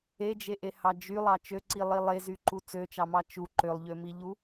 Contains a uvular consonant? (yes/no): no